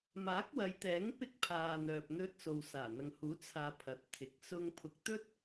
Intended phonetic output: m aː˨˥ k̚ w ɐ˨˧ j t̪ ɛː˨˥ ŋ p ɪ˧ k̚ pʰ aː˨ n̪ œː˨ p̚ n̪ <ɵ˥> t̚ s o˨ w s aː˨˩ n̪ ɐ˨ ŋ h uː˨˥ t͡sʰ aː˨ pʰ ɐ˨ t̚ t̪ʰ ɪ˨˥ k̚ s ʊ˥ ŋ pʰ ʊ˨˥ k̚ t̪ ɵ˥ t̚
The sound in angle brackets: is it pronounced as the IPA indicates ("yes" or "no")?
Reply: no